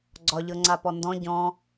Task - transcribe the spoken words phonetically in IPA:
ɡ͡ǀ ɒ ʎ ɤ ŋ͡ǀ a p ɔ n d ɔ̃ ɟ ɔ̃

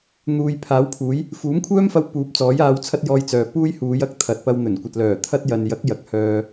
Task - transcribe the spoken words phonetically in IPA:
n̪ uː˨ j pʰ aː˨˥ w pʰ uː˨˥ j | f uː˨˥ m kʷʰ œː˥ m f ɐ˧ w p uː˨˥ p̚ t͡s ɔː˨˥ j aː˧ w t͡sʰ ɐ˥ t̚ j ɔː˧ j t͡s œː˨ p uː˥ j h uː˨˧ j ɐ˥ k̚ t̪ʰ ɐ˨˥ t̚ p ɐ˧ w n̪ ɵ˨˩ n kʷ ɐ˨ t̚ l œː˨˩ t̪ʰ ɐ˥ t̚ j ɐ˨ n j ɐ˨˥ k̚ j ɐ˨˥ k̚ h œː˧

